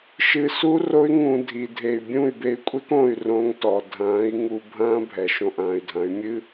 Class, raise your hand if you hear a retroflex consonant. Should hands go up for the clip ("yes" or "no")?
no